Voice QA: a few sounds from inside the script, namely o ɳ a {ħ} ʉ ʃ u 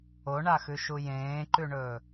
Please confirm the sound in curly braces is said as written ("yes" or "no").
no